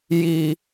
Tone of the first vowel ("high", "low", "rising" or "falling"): low